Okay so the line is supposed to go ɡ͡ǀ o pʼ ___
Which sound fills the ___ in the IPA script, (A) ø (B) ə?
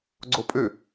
A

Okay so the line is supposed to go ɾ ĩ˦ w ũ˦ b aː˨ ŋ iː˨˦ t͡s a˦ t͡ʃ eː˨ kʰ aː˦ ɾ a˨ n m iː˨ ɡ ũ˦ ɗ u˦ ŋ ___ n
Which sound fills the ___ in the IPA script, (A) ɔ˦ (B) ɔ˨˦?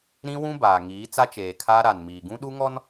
A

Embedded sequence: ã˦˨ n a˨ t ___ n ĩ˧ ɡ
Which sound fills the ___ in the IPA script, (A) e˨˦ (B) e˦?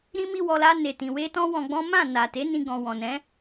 A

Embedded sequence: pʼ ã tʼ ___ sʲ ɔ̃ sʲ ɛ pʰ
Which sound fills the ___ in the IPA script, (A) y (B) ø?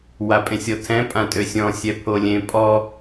B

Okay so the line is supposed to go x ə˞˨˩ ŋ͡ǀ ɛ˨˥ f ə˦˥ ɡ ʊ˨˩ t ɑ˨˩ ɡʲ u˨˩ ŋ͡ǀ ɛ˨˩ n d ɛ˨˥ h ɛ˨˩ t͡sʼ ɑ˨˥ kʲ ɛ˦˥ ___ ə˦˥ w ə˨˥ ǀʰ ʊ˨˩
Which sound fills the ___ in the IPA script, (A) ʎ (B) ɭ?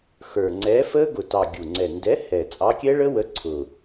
B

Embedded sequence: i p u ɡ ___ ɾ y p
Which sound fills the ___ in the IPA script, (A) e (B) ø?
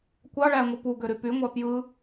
B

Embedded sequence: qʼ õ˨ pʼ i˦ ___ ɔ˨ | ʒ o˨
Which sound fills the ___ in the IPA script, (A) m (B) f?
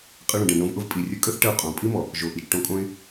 A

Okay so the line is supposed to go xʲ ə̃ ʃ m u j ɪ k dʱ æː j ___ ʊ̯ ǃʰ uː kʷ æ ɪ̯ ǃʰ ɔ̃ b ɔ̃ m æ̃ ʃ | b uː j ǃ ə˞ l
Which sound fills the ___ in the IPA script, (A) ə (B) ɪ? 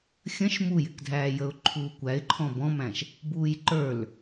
A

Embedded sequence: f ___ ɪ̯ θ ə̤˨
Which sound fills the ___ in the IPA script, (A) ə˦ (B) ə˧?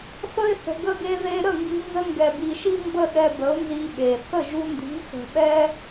B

